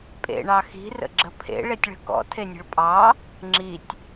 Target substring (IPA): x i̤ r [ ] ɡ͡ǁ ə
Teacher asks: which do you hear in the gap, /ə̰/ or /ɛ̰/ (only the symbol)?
ə̰